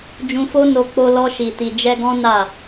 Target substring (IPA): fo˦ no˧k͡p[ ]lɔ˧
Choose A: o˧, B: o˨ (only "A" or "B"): A